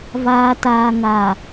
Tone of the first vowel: low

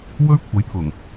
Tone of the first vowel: high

